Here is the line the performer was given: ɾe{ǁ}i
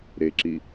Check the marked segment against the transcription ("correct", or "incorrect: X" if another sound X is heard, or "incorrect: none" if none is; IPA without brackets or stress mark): correct